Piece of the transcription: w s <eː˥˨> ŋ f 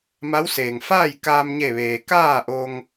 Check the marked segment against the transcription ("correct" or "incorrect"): incorrect